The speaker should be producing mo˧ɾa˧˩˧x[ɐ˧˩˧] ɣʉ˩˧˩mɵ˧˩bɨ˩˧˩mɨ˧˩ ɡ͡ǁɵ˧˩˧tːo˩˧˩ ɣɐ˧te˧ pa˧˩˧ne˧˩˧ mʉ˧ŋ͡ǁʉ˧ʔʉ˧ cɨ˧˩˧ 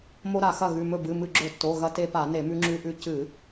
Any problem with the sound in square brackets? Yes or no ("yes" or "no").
yes